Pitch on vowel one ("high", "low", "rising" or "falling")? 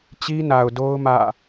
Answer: high